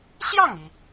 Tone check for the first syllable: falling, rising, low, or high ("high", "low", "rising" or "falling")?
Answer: falling